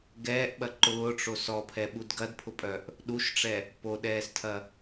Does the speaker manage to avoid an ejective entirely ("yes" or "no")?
no